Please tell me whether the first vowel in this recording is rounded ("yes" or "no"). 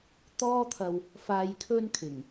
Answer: yes